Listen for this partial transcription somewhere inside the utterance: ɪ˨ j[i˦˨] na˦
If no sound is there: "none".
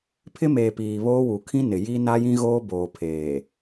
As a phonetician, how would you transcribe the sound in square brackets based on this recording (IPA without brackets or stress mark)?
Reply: i˦